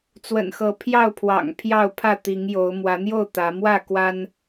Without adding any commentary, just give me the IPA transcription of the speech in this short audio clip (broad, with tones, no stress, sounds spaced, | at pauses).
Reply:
t͡s w ə̰˨˩ n x ɤ˨˦ pʰ j ɑ˥˨ ʊ̯ pʰ w ɑ̰˨˩ ŋ pʰ j ɑ˥˨ ʊ̯ pʰ ä˥˨ t̪ i˨˦ ŋ j o˨˦ ʊ̯ m w ä˨˦ n̪ j o˥˨ ʊ̯ t̪ ä˨˦ m w ä˥˨ k w a˦ n